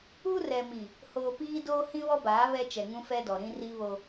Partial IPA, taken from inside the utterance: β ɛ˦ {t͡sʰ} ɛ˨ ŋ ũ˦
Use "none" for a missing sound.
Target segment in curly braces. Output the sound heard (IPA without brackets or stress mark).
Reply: t͡ʃ